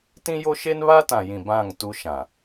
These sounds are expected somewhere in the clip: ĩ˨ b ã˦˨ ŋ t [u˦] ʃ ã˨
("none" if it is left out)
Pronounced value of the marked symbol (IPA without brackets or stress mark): u˦